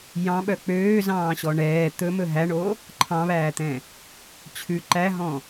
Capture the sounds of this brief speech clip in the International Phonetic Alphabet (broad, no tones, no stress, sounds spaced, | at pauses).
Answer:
j ɑ̃ ɓ œ k͡p øː z ɑ̃ː ɕ ɔ ɳ ɛː t̪ ɵ m ɵ ɦ æ ɳ o | ǃʰ ɑ̃ β æː t̪ ɛ̃ | t͡ɕʰ ʉ ǃ æ ɦ ɔ̃